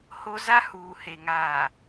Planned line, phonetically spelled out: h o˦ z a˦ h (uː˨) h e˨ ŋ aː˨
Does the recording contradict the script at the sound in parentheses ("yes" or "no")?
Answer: no